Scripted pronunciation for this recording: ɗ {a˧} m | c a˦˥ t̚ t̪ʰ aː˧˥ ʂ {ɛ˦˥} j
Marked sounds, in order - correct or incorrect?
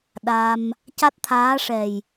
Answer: correct, incorrect

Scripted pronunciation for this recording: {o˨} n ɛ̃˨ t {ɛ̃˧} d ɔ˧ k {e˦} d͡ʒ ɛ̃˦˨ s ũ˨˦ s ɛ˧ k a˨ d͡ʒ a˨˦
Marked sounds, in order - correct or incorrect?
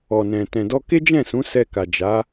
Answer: incorrect, incorrect, correct

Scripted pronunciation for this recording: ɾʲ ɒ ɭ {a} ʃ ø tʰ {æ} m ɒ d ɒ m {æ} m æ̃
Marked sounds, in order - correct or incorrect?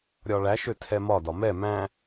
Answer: incorrect, incorrect, incorrect

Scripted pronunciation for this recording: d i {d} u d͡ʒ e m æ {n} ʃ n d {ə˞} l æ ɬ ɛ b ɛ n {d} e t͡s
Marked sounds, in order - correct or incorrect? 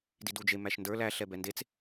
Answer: correct, incorrect, correct, correct

